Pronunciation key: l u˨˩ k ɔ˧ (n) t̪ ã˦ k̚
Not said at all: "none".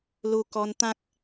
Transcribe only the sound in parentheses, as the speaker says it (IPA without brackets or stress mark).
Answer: n